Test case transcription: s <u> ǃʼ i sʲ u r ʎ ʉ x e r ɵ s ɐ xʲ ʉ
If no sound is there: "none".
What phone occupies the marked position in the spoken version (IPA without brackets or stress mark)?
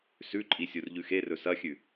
ʉ